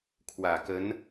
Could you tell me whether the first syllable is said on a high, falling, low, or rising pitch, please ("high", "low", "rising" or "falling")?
low